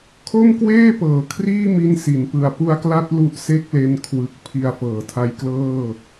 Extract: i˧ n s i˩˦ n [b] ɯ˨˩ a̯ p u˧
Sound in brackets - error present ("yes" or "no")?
yes